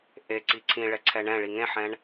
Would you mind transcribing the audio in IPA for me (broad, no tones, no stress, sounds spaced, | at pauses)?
ʔ e ǀ i ǀʰ ĩ ɭ ɛ ǀʰ ɛ ɳ ɛ̃ ɭ i ŋ ẽ ħ ɛ̃ ɳ